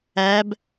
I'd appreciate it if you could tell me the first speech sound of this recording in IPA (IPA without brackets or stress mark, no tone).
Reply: æ